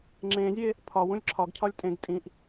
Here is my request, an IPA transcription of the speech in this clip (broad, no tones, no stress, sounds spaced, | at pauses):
ŋ͡ǁ ẽ zʲ e | pʰ ɒ w ũ lʲ ǁʰ ɒ ɡ cʰ ɒ lʲ tʼ ẽ ɡ tʼ ĩ ʔ